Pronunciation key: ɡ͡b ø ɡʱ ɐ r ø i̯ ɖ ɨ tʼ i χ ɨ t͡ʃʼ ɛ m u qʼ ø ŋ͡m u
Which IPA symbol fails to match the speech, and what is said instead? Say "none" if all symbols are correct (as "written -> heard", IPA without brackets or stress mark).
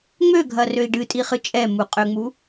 ɡ͡b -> ŋ͡m